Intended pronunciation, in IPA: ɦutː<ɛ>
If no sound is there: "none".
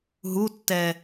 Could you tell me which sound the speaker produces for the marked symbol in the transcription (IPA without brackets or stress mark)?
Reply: ɛ